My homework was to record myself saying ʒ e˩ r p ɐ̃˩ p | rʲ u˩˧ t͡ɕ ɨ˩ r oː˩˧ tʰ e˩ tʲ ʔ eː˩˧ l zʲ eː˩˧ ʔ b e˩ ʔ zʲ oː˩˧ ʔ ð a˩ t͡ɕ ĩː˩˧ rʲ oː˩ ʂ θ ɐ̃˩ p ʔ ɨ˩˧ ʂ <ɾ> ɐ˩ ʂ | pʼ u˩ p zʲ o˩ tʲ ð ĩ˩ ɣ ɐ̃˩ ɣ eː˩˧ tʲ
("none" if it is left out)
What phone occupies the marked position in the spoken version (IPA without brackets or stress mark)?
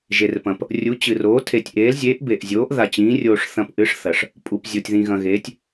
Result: θ